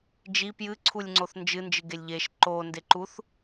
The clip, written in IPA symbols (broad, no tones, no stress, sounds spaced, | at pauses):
d͡ʒ i p j ɨ ǀʰ u lʲ ŋ͡ǀ o θ n d͡ʒ ɨ n d͡ʒ ɨ ɡ e lʲ ʎ e ʃ ǃ o n d e ǃ u θ